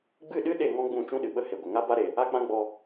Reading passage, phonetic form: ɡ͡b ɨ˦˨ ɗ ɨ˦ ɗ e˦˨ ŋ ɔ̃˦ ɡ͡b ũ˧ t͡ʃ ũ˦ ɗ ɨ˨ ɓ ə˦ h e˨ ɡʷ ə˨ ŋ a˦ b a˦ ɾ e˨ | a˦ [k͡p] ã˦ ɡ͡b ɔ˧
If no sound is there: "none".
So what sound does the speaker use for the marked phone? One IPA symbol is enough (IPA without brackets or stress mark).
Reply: k͡p